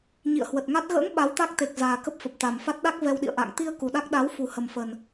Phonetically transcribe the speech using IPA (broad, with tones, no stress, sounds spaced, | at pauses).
ɲ ḭ˧˨ ə̯ h w ə˨˩ t̚ ŋ a˦˥ t̚ ɣ ə̰ː˧˥ ŋ ɓ a˨˦ w t̪ a˦˥ k̚ t̪ e˨˩ k̚ z aː˨˩ k ə˦˥ p̚ f ə˨˩ p̚ t̪ a˨˩ m f a˦˥ t̚ ɗ a˦˥ k̚ v ɛ˧ w ɗ ḭ˧˨ ə̯ ʔ a̰ː˧˨ ŋ t̪ i˧ ə̯ k u˨˩ ɗ a˦˥ k̚ ɗ a˨˦ w f u˨˩ h ə˨˩ m f ə˨˩ n